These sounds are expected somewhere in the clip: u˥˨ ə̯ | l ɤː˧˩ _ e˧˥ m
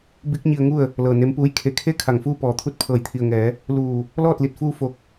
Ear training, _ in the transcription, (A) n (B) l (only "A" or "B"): A